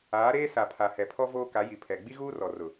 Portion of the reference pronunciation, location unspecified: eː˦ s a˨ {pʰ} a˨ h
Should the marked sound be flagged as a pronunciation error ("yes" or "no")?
no